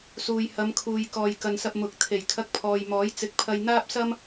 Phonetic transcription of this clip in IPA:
s uː˨ j h ɐ˨˧ m kʰ uː˨ j k ɔː˨ j k ɐ˨ n s ɐ˧ p̚ m ʊ˨˥ k̚ t̪ʰ e˨˩ j kʰ ɐ˧ k̚ pʰ ɔː˨ j m ɔː˨˥ j t͡s ɪ˨˥ k̚ pʰ ɐ˧ j n̪ aː˥ p̚ s ɐ˥ m

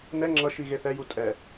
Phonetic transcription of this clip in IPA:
n ɛ ŋ͡ǁ ʌ ʃ i ɣ e θ ɛ j u tʼ ɛ

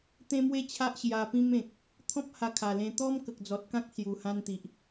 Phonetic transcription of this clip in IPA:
t̪ ẽ˦ m w e˥˧ t͡ɕʰ a˦ ʔ ɕ j a˧ p ĩ˦ m ẽ˨ k̚ | t̪ʰ ɔ̃˦ p̚ h a˧ kʰ a˨˩ l ẽ˧ t̪ ɔ˦ m k ə˨ k̚ d͡z ɔ˨ t̚ k ã˦ k̚ s j u˨˩ h ã˧ n t̪ i˨ ʔ

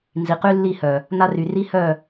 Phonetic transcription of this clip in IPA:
n z i˨ q y˦ lː i˦˨ h œ˨ | n a˦ r y˨ r i˦ h œ˦˨

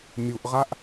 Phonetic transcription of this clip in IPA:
mʲ u ʔ ʁ a ʔ

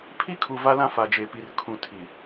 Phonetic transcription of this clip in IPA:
pʰ i˦ kʰ u˨ v a˦ l ã˦ f a˨ d͡ʒ e˨ p i˨ r kʰ ũ˨ tʰ i˨

